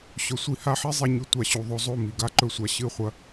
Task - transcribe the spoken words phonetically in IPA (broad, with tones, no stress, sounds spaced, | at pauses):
ɕ ɵ˨ sʷ i˦ h a˦ ħ i˦ zˤ e˧ ɲ ʉ˨ tʷ a˨ ɕ u˨ ðˤ o˧ zˤ o˦˨ m i˨ ɡ a˦ ǃ ɵ˧ sʷ a˨ ɕ ɨ˦˨ χʷ ɐ˦